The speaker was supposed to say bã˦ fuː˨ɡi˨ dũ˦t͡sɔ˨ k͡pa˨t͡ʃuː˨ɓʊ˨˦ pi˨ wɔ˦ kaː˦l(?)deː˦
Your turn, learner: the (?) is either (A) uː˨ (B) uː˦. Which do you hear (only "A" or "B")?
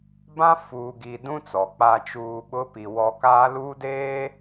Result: B